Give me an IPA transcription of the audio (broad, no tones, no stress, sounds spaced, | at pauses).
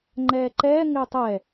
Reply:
ŋ͡ǃ ɛː ǃ ɛː ŋ ɪː tˤ ɛ